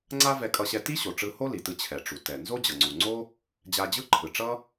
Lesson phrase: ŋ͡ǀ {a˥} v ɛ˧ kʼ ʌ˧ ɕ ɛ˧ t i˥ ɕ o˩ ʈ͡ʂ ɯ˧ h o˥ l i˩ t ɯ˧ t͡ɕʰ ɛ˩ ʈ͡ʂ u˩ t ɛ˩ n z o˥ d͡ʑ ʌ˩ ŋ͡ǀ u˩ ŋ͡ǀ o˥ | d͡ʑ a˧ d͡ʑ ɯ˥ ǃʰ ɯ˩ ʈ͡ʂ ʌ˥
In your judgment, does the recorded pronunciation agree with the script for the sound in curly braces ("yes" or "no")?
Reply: yes